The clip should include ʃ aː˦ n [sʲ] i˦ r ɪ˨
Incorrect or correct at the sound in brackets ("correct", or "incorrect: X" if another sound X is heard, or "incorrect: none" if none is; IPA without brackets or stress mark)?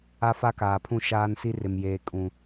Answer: incorrect: s